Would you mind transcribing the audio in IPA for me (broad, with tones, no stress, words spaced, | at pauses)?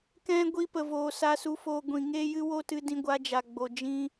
kɛ̃˦ ɡʷi˧pə˨voː˨ sa˧su˧foː˧ ɡʷĩ˨ŋeː˦jɨ˦ wo˦tɨ˧dĩ˧ ɡʷa˧d͡ʒa˨ɡ͡bo˨ d͡ʒĩ˦